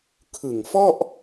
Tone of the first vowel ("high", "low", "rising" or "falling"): low